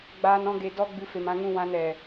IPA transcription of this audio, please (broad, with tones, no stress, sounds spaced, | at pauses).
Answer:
ɡ͡b aː˧ n ɔ̃˧ ɡ e˨ d ɔ˦ ɡ͡b ɨ˦ f e˧ m ã˦ ŋ ũ˦ w ã˦ n ɛ˨